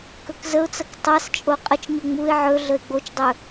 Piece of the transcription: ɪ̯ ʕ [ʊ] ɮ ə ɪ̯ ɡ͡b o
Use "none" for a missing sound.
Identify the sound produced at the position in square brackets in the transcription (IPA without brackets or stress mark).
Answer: ɵ